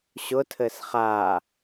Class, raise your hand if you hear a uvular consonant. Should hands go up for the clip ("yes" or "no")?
yes